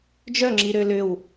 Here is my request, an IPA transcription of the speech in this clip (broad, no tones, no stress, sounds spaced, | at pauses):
d͡ʒ œ ŋ͡ǁ i ɾ ø l ʏ w